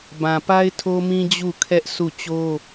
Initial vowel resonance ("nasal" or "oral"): nasal